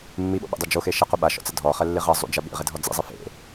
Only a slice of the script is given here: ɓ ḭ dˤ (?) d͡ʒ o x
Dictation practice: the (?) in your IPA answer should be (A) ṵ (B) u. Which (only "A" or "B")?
B